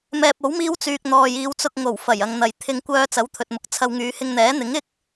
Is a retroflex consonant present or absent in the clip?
absent